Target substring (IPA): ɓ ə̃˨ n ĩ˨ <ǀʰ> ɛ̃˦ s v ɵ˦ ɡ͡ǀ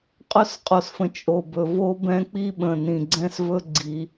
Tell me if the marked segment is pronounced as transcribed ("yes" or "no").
no